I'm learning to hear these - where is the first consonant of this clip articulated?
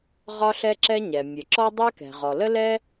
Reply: uvula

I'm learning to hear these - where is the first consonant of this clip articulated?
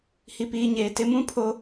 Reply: throat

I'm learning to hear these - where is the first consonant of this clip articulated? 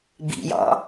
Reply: lips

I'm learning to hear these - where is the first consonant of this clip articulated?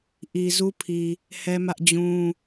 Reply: throat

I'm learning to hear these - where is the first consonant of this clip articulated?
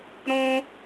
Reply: tongue tip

